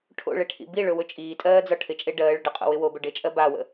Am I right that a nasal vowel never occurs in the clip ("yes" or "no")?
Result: yes